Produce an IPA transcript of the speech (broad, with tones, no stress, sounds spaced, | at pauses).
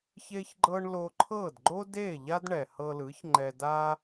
ç e˥ ç ɡ͡ǃ ɤ˥ ɳ l o˧ ǃʰ ɤ˥˩ d ɡ͡ǃ o˥ d e˥˩ ʎ a˥ d ɳ ɛ˩ h ɤ˧ l ɯ˩˥ ç ŋ͡ǃ ɛ˧ d a˥